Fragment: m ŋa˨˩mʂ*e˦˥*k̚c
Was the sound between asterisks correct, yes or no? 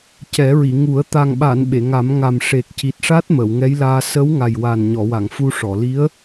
no